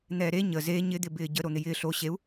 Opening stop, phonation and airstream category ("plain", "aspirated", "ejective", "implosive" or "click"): plain